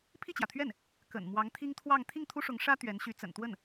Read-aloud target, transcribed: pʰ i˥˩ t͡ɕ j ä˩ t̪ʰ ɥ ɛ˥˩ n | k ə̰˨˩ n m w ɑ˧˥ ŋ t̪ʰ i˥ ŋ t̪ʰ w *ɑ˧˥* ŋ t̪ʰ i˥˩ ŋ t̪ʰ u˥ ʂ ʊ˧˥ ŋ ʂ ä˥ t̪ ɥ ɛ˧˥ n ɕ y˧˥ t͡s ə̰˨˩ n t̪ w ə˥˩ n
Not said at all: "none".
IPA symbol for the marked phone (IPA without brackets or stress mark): ɑ˥˧